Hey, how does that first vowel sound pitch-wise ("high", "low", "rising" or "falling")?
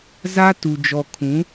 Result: high